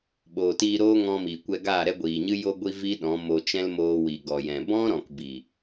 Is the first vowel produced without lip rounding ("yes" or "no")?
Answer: no